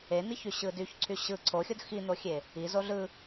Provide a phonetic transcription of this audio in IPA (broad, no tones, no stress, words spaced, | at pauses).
en̪içy ɕɯdyç ǀʰyɕɯ ǀʰoxʲod xin̪oxʲe | izo ɮɯ